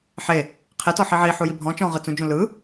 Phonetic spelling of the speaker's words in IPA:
ħ e | qʰ e t ɔ ħ i ʕ i ħ u j i bʱ ɔ̃ t͡ʃ ɔ̃ ʁ ɯ t͡s ũ d͡ʒ ũ l ɯ

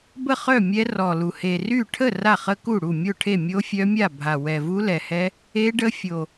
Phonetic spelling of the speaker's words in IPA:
b ə˥˩ χ œ˥˩ mʲ ɛ˦˥ r ɔ˨˩ l u˨˩ h e˨˩ r y˥˩ ʈʰ ə˥˩ r a˥˩ χ ə˦˥ k u˥˩ ɽ u˥˩ mʲ o˥˩ ʈʰ e˥˩ mʲ o˦˥ fʲ œ˦˥ mʲ a˥˩ bʱ a˨˩ w ɛ˨˩ v u˦˥ l ɛ˨˩ h ɛ˦˥ | e˦˥ ɖ ə˦˥ fʲ o˨˩

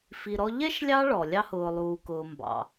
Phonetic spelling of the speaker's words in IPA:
f i˨ ɾ ɔ˥ ʎ ɛ˥ ʃ lʲ ɑ˦ ɭ ɔ˩ lʲ ɑ˥ h ʊː˨ lˠ uː˨ k ʊː˨ m b ɑ̰˩

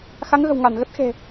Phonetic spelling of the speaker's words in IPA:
x a˨˦ ŋ ɣ ə̤˨˩ w ŋ a˧˩ n ɣ ə˦˥ t̚ x e̤˨˩

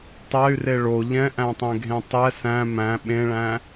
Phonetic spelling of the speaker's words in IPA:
tˤ ɛ y̯ r e ɭ o ʎ ɛ̃ ʔ æ̃ tˤ ẽ ɡʱ ẽ tˤ ɛ s æ̃ m æ̃ ɓ ẽ ɭ æ̃

